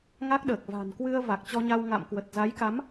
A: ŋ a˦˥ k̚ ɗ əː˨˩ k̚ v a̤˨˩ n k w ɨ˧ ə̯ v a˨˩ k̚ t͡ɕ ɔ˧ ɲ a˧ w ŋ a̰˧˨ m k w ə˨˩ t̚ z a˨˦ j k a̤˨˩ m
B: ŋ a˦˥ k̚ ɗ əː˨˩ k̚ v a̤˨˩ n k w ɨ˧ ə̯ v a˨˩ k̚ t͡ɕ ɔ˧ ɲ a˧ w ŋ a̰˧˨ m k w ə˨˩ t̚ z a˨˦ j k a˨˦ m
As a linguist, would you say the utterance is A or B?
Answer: B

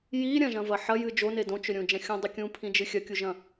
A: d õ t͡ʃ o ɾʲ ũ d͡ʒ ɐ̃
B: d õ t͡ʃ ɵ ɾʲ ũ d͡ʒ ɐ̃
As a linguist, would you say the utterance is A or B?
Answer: B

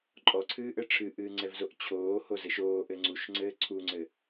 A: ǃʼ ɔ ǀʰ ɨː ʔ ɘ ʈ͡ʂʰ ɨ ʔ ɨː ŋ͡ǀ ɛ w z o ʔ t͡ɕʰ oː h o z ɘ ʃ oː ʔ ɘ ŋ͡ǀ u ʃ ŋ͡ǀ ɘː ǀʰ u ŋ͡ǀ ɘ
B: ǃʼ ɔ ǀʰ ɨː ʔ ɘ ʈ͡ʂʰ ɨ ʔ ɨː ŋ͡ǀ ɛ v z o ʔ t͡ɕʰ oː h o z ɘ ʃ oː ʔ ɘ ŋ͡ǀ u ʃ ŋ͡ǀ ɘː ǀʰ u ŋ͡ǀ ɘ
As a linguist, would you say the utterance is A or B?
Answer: B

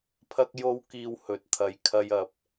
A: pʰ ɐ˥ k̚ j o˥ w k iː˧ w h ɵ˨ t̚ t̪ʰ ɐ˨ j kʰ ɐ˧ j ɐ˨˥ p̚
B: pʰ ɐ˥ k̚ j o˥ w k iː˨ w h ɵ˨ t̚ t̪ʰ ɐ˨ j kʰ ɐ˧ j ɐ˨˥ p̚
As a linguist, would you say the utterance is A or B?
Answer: A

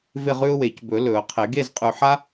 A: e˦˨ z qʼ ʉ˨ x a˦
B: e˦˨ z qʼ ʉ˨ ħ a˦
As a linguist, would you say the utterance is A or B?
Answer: B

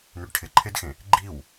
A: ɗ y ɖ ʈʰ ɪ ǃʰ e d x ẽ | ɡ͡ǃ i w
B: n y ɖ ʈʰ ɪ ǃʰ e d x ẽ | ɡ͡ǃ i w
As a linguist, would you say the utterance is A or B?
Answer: B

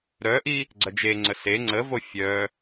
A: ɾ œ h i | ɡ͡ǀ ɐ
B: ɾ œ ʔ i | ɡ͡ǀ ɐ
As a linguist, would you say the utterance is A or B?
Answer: B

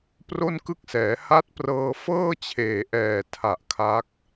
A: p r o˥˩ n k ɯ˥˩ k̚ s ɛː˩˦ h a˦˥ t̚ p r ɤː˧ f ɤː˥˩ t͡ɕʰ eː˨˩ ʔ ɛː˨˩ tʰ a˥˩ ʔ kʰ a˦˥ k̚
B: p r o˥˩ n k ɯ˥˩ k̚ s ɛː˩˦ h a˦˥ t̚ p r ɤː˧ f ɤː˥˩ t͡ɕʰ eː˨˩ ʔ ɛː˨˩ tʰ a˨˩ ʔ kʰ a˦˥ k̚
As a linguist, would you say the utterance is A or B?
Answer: B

